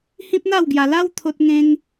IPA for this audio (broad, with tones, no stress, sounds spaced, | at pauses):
h ĩ˦ p̚ n̪ a˥˧ w ɡ j a˧ l a˦ w t̪ʰ o˦ t̚ ŋ ẽ˦ ŋ